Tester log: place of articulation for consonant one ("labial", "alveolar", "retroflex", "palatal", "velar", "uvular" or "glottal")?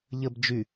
palatal